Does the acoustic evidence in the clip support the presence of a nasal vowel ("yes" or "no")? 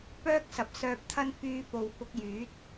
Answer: no